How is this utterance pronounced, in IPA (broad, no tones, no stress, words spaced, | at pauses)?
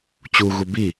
t͡ɕuɣu bi